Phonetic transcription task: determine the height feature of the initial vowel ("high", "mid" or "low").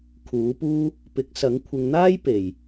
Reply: high